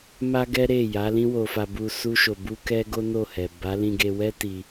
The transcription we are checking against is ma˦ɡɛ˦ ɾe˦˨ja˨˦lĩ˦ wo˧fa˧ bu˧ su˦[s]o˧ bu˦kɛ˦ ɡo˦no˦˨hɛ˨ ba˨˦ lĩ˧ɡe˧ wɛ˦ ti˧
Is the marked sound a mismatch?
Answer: yes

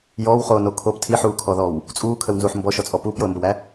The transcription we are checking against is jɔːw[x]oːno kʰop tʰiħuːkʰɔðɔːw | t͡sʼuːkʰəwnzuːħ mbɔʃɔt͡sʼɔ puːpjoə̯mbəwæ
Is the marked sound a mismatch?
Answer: yes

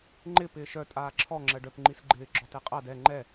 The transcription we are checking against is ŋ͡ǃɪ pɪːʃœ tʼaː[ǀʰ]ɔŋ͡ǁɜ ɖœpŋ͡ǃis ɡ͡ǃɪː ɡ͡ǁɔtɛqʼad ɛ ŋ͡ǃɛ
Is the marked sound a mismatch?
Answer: yes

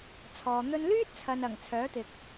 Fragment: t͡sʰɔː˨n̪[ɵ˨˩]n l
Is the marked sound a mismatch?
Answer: yes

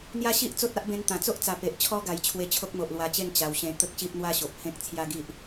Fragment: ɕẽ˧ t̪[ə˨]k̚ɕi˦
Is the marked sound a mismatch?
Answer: yes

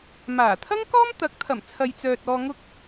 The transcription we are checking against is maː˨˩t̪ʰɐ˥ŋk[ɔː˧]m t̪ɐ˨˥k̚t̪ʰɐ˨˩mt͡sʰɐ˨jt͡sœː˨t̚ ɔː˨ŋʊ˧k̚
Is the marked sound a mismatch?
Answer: yes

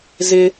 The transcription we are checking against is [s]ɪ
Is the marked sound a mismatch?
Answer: yes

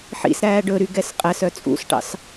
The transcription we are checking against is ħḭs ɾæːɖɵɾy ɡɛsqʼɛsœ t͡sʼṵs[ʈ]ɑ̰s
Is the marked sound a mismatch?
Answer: no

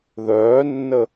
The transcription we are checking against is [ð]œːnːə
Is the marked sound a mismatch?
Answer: no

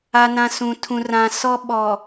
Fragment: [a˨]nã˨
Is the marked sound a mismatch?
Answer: no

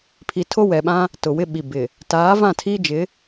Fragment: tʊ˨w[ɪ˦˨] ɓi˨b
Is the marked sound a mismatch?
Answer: yes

